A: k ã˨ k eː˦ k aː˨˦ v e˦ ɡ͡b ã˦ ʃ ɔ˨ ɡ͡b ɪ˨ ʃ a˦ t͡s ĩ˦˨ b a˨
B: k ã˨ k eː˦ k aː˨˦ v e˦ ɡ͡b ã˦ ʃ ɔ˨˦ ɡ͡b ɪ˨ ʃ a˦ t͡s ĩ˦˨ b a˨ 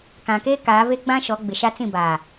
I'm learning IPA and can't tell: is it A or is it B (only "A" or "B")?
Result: B